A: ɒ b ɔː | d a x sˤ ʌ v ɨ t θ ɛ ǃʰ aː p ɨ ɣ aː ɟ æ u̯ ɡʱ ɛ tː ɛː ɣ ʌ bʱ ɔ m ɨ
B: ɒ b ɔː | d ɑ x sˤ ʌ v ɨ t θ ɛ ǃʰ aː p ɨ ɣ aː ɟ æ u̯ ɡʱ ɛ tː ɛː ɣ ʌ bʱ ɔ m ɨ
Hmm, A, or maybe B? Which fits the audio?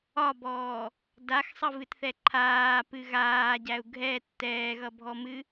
A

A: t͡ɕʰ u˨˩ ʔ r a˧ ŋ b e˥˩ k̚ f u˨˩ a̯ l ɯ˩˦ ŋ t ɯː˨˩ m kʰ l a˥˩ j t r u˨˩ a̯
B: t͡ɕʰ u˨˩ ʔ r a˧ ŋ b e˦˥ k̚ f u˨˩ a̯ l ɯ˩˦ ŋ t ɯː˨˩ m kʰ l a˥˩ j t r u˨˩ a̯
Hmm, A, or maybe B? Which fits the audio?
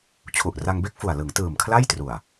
A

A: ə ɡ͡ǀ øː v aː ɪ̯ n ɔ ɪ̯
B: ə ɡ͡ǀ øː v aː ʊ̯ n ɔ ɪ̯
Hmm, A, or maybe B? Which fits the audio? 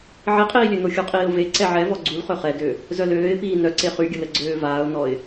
B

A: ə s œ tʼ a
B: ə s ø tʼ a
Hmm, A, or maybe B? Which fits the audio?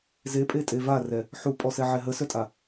A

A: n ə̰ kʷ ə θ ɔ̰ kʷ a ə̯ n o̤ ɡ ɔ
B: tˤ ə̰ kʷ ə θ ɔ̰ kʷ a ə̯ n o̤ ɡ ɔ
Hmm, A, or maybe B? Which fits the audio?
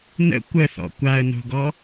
A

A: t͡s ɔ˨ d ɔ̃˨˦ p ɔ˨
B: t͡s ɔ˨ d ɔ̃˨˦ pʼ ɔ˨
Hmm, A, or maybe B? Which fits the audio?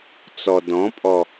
B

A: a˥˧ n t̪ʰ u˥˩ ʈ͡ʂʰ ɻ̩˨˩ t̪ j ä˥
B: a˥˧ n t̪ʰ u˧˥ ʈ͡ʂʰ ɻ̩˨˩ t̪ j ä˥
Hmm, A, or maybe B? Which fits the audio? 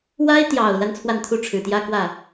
A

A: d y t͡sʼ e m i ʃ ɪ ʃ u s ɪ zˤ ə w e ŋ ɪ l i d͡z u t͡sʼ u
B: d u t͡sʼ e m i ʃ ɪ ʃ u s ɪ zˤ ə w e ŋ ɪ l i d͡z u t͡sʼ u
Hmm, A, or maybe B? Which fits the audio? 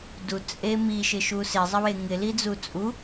B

